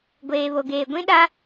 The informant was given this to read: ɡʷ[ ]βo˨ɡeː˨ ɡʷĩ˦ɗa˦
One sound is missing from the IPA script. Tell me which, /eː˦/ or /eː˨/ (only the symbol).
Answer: eː˨